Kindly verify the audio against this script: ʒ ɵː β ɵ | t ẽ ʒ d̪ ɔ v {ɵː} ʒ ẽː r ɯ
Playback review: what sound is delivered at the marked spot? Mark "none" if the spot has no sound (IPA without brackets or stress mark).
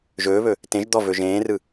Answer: ɵ